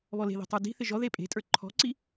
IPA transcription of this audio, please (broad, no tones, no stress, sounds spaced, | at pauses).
β ɔ l e̤ ð i̤ tˤ ə˞ d i̤ θ ɪ ʒ ɔ ð e pʼ e̤ tʼ ə˞ ǃʰ ɔ̤ ǀ i